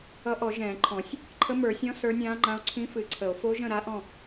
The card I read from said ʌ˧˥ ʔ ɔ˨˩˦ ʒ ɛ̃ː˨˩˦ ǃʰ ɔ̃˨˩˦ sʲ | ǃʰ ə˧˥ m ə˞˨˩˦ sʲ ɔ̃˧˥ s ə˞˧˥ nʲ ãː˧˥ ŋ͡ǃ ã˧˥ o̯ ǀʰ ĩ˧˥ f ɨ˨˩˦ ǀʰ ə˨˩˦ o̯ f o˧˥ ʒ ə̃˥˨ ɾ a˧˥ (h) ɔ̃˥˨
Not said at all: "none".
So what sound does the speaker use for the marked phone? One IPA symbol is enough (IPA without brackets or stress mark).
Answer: ʔ